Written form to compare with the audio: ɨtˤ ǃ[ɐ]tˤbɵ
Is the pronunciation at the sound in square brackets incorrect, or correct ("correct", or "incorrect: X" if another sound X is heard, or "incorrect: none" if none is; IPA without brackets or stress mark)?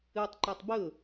correct